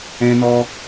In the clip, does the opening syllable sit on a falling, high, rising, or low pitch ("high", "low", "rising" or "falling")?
high